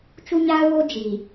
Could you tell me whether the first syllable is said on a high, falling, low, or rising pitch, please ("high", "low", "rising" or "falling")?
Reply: high